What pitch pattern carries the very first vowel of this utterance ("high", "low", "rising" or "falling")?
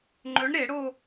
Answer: rising